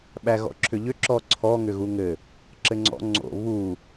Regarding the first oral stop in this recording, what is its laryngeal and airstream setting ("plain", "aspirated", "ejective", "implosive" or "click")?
implosive